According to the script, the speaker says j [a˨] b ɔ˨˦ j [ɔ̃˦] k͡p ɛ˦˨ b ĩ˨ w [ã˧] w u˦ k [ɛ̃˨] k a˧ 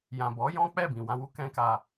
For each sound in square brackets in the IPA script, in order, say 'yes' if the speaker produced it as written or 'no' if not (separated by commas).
no, yes, yes, no